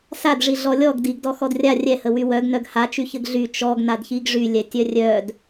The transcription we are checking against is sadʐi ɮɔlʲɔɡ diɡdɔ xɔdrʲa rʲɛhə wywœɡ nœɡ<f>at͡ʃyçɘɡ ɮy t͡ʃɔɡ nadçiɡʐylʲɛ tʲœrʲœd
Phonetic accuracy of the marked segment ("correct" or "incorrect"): incorrect